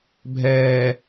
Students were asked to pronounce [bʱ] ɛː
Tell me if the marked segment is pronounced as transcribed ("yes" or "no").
yes